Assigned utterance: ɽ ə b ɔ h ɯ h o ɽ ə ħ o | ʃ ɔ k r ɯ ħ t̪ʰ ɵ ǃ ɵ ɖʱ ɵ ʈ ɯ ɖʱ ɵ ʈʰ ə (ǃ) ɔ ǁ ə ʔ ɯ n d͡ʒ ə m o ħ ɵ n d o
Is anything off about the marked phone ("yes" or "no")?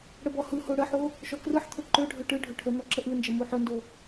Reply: yes